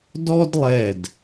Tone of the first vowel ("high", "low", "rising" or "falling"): high